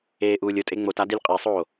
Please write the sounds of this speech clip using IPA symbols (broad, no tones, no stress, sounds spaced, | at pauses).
eː ʔ uː lʲ ʊ tʼ e ŋ͡m o t a d i lʲ qʼ e sˤ oː